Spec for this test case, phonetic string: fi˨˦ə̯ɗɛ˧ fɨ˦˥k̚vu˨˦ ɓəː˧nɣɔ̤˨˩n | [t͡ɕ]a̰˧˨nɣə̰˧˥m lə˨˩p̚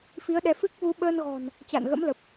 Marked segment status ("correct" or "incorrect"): correct